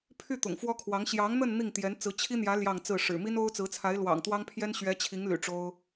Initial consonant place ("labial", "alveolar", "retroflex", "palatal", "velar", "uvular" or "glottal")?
labial